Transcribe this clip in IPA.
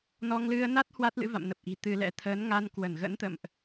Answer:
nɔ˧ŋlɨ˧ə̯na˦˥t̚ hwa˦˥t̚lɨ̰˧˥va̰˧˨m nə˨˩p̚ʔi̤˨˩ t̪ɨ˧lɛ̰˧˥ t̪ʰəː˨˦n ŋa˧nkwə˧˩nɣə̰˧˥nt̪ə̰˧˨mʔ

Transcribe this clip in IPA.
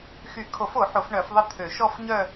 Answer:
xy˨˩˦kʰo˨˩˦fo˨˩˦ ħo˨˩˦fɳœ˨˩˦fðˤə˥˧ t̪ʰø˨˩˦ ʃɔ˥˧fɲœ˥˧

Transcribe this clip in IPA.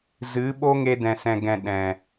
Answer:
zɨ˨˦ɓo˦ŋe˧ dɛ̃˨sɛ̃˨ɡɛ̃˨ ɗɛ̃˨

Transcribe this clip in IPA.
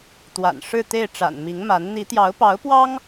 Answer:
t̪wa̰˨˩nʂɻ̩˥˧ t̪e˥˩ɪ̯ʈ͡ʂa̰˨˩n mi˧˥ŋma˧˥n n̪i˧˥t̪jɑ˧˥ʊ̯ pɑ˧˥ʊ̯pwɑ˥ŋ

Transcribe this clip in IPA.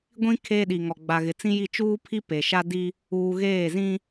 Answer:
ɡʷĩ˦ kʰeː˦ɗi˨ŋɔ˨ ɡ͡ba˨ɣɪ˨t͡sĩ˦ji˦˨ t͡ʃuː˦pʰi˦ pe˨ʃa˦di˦ | uː˨ ɣeː˦˨zĩ˦

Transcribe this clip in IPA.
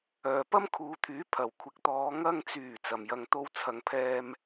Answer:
œː˨pɐ˥mkʰuː˨˧t̪ʰyː˨˥ pʰɐ˨˩wkʷʰɪ˨k̚t̪ɔː˨˧ ŋɐ˧ŋt͡syː˨˩ t͡sɐ˨mjɐ˧ŋt̪o˥w t͡sʰɐ˨ŋpʰɛː˧m

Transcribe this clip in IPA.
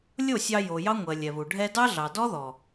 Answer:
lʲo˦˨sʲɑ˧ jo˨jɑ˦ ŋʷɜ˨lʲɛ˨βu˨ ɖʱɛ˧ dɑ˦ɮɑ˨dɔ˦ðɔ˨

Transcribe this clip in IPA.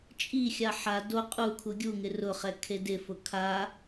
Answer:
t͡ʃʼixʲa ħa do qʼukʰu ɡʲuŋɪ rʊχɛ kʰedɪfʊ kʰa

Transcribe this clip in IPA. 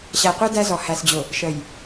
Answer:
ɕæ˨qʷɑ˦ dæ˦zɔ˨ hæ˨sd͡ʑʊ˨ | ʃə˨j

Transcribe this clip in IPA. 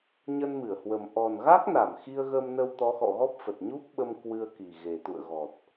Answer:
ɲə˧nmɨ˧˩ə̯hwə˨˩m ʔɔ˨˩nɣa˦˥k̚na˧˩m xi˧ə̯ɣə˧mnə˧w t̪ɔ˨˦xɔ̰˧˨ɣɔ˦˥p̚fə˨˩t̚ ɲu˦˥p̚ɓə˧m kwɨ˧ə̯ki˨˩ ɣe˨˩ t̪ṵ˧˨ə̯ɣɔ˨˩t̚

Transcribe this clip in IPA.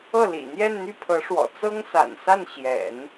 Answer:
ɤ˥˩lḭ˨˩ n̪jɛ˥˧nn̪y˥˩pʰɤ˧˥ʂwɔ̰˨˩ t͡sɤ˥ŋsa̰˨˩nsa˥˩n ɕjɛ̰˨˩˦n

